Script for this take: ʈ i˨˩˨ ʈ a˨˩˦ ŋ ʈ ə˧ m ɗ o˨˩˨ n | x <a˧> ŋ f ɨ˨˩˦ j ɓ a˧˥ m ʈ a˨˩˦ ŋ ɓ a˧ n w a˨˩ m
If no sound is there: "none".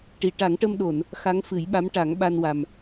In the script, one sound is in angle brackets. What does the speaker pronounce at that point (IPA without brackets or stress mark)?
a˧˥